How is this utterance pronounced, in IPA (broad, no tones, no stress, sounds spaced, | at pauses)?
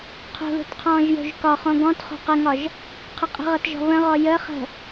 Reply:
qʰ o̤ ð o̤ t qʰ ɔ̃ː ʒ j o̤ ʒ k ɒ χ õ ɡ ɔ̃ t χ o̤ q ə ŋ ɒ ʒ | qʰ ə qʼ ə̤ ʁ ʌ t ʒ ɔ̤ β ə̃ ʁ ɔ j ə χ ə̤